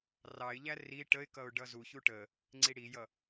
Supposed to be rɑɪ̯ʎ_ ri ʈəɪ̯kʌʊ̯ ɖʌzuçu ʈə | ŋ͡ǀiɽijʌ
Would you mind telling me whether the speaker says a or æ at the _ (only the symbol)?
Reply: æ